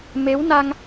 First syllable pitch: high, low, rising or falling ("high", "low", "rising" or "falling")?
rising